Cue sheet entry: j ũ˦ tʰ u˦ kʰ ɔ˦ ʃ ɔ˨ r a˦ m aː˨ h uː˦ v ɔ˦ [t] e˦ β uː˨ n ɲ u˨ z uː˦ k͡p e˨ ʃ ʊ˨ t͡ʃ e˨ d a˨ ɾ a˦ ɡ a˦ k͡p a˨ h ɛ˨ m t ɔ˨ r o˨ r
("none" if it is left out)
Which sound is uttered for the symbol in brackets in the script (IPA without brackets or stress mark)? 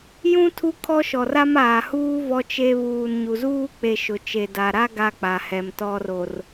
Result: t͡ʃ